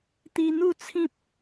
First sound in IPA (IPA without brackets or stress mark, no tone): t̪